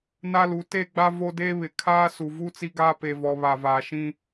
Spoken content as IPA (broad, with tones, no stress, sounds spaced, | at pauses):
n a˦ l u˨˦ t e˦ ɡ͡b a˦ v o˦ d e˦ β ɪ˨ kʰ aː˦ s u˨ v u˦ t͡s i˦ ɡ aː˦ p e˨ v ɔ˨ β a˨ v aː˨ ʃ ĩ˦